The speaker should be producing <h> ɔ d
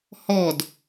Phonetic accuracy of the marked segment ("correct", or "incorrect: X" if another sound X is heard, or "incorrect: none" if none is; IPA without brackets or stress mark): correct